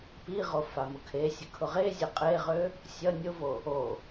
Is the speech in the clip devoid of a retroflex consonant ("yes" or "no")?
yes